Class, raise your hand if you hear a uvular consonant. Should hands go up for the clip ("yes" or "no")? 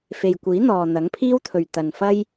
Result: no